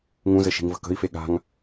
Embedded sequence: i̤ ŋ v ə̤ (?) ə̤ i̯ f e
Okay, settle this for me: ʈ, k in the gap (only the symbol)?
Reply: k